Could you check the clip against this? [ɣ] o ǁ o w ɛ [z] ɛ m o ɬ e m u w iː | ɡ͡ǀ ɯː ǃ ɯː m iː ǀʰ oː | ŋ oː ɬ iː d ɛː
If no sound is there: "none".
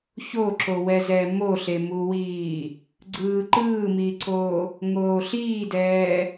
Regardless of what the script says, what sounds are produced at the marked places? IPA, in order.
ç, z

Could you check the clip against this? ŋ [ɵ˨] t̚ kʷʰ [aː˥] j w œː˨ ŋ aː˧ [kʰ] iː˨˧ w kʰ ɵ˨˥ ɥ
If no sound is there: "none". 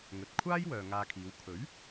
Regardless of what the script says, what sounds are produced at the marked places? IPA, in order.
ɵ˨, aː˥, kʰ

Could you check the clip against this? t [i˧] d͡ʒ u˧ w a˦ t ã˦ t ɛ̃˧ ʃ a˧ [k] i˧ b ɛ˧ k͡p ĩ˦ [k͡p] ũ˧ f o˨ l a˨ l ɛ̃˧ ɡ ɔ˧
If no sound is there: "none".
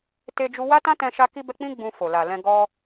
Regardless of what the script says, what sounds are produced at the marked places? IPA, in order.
e˧, k, ɡ͡b

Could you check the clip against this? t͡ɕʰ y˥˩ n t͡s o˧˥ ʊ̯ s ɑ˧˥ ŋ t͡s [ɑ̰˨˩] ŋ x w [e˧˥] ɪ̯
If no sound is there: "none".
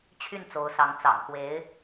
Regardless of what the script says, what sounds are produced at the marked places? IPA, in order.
ɑ̰˨˩, e˧˥

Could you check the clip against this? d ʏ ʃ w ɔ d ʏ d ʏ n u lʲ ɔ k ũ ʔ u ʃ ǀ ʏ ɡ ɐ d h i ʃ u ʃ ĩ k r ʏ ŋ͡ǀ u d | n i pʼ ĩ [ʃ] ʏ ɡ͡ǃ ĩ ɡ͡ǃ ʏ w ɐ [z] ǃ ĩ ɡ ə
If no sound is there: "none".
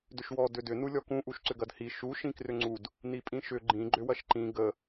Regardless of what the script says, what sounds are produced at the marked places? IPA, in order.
ʃ, ʃ

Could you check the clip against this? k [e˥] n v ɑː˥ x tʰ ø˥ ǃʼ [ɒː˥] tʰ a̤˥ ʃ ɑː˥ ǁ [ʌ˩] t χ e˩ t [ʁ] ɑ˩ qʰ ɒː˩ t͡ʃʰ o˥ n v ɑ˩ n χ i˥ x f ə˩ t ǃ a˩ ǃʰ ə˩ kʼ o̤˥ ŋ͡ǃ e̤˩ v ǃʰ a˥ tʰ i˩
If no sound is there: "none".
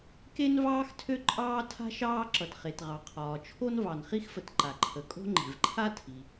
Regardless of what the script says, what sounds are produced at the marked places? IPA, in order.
e˥, ɑː˥, ʌ˩, ʁ

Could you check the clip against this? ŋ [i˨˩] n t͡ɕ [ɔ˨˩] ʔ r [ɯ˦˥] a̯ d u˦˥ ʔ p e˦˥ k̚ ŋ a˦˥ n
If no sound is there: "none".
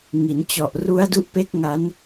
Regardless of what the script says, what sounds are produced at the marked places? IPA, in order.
i˩˦, ɔ˨˩, u˦˥

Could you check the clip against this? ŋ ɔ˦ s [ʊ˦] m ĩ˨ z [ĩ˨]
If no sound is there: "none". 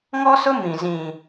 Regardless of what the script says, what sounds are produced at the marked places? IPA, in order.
ʊ˦, ĩ˨

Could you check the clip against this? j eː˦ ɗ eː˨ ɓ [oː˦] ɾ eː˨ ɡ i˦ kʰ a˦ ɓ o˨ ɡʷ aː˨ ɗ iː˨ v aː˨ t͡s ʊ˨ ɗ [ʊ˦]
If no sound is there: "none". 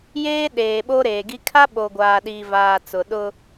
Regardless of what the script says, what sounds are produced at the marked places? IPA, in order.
o˦, ʊ˦

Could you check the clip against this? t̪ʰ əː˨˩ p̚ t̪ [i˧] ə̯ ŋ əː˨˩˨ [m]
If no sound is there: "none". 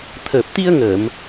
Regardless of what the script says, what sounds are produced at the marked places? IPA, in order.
i˧, m

